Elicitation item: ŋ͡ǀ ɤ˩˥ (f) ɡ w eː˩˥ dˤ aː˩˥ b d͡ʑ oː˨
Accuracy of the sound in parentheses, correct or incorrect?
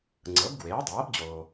incorrect